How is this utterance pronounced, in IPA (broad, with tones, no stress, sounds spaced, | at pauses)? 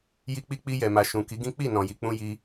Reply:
j i˧ k͡p i˧ k͡p i˧ j ɛ˨ m a˨ ʃ ũ˨ k i˨˦ ɡ ĩ˦ k͡p i˦˨ n ɔ̃˨ j i˨ k͡p ũ˧ j i˦